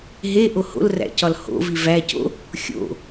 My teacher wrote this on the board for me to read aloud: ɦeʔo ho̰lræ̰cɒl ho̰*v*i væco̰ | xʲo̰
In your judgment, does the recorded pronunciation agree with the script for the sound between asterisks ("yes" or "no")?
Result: yes